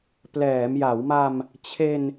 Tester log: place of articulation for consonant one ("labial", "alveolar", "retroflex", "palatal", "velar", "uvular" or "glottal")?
labial